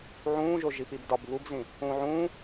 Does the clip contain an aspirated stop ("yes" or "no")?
no